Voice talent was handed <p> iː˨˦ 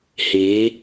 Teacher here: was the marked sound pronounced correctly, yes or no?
no